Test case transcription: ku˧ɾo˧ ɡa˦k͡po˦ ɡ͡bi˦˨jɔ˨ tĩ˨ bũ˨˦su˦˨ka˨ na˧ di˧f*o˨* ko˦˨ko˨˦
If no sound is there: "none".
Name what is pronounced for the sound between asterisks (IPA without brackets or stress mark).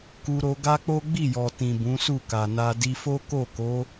o˦